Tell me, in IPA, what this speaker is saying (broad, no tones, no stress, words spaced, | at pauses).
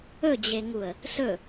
ɵd͡ʑeŋuə̯ | sɵ